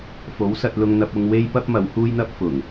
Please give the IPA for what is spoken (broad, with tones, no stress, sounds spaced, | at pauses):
f o˨˥ w s ɐ˧ t̚ l ʊ˧ ŋ n̪ ɐ˧ p̚ ʊ˧ ŋ w e˥ j p ɐ˥ p̚ m ɐ˨˧ w h uː˥ j n̪ ɐ˥ p̚ f ʊ˨˩ ŋ